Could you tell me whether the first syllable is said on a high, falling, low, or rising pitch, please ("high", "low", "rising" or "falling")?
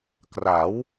rising